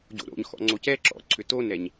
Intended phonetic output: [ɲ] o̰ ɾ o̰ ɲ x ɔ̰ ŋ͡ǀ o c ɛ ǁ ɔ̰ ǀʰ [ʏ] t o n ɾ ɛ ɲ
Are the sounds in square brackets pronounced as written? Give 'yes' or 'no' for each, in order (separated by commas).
no, yes